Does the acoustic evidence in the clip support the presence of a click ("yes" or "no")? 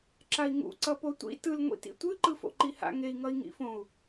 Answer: yes